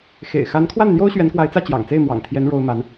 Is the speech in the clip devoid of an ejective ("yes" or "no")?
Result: yes